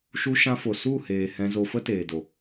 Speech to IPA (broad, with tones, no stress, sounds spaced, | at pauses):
ʃ u˧ ʃ ã˧ f o˨ s u˦˨ h eː˨ h ɛ̃˧ z o˧ f ə˦ t eː˨ d o˨